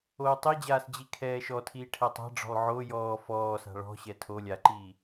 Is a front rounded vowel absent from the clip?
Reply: yes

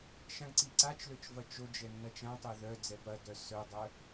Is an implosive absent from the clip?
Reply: yes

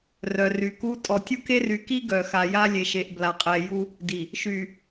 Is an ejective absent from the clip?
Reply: no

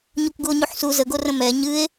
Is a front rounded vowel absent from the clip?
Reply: yes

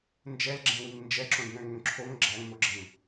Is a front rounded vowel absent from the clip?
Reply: no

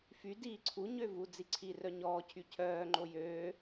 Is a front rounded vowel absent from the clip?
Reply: no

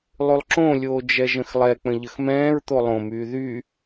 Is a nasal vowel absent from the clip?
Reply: no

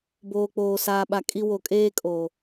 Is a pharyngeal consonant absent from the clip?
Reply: yes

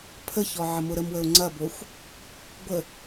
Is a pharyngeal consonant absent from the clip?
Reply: no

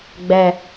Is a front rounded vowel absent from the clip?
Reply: yes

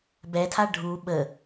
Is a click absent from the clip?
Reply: yes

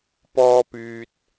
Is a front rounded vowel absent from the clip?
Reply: no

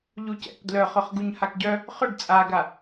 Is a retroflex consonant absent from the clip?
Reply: no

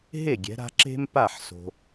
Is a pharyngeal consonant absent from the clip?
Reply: no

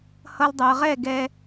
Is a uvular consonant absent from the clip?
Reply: no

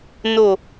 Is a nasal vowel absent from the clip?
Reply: yes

